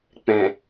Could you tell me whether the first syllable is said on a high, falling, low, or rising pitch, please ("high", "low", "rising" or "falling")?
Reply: low